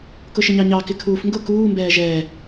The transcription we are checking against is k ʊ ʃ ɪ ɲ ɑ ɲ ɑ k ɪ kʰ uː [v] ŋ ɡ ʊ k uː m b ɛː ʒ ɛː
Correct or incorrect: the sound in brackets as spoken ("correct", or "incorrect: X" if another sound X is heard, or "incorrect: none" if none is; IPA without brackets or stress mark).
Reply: incorrect: f